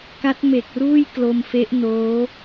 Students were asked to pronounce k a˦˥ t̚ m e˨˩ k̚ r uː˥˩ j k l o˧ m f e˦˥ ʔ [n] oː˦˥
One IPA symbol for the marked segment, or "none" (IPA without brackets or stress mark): n